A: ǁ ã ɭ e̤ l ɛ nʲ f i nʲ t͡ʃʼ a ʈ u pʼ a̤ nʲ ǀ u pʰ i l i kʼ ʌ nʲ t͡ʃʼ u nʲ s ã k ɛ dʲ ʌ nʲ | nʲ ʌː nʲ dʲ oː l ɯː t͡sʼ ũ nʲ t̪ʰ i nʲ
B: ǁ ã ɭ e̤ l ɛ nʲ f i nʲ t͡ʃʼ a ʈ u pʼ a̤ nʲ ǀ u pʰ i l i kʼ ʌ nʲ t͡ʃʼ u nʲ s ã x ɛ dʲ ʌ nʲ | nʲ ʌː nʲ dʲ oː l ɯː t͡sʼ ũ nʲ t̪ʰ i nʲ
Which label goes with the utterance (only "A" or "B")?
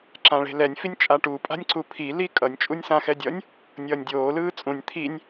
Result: B